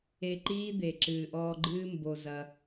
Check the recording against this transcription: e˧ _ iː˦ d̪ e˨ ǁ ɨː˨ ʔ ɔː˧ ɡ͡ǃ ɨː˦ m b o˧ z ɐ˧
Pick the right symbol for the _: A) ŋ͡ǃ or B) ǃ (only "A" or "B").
B